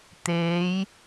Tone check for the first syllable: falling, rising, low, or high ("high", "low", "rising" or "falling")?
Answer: rising